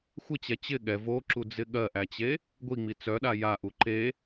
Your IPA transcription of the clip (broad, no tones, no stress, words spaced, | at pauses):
xʷɪt͡ɕɛ t͡ɕɪ ɠɛ voǁud͡zɪ ɠɜʔæt͡ɕe | ɡʷiŋ͡mi t͡sœɗa jaʔu ǃe